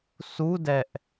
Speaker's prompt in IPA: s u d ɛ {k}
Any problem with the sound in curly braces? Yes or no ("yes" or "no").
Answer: yes